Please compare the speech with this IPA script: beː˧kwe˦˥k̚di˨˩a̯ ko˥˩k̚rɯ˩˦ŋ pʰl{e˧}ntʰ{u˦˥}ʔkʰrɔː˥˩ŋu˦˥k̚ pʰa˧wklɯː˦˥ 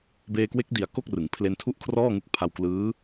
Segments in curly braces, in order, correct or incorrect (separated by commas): correct, incorrect